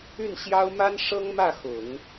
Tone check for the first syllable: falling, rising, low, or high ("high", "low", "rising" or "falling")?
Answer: falling